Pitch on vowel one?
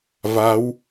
rising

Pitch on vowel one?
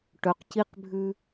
rising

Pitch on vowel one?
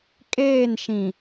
falling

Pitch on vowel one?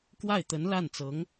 falling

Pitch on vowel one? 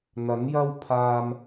rising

